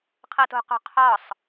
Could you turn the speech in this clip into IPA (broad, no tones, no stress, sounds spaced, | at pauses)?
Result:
qʰ ɤ t o̤ q o̤ qʰ ɒ sˤ